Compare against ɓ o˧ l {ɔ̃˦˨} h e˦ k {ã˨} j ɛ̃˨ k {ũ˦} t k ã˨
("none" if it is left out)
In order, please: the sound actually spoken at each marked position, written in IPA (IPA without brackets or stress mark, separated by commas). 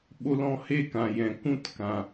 ɔ̃˦˨, ã˨, ũ˦